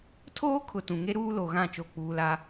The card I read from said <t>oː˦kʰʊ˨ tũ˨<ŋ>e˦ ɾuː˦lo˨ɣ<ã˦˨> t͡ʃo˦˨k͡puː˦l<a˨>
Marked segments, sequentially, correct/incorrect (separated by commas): incorrect, correct, correct, incorrect